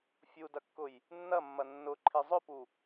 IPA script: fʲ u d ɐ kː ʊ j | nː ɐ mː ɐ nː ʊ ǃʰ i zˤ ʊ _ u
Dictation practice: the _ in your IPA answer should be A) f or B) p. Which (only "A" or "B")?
B